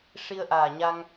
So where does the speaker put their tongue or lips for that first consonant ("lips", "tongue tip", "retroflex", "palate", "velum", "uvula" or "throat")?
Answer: retroflex